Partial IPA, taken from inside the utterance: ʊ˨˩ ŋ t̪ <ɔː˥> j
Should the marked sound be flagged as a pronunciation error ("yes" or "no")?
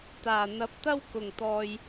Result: yes